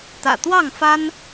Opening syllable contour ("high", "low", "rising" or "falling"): low